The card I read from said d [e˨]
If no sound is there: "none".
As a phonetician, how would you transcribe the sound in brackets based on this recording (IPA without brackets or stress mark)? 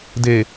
e˨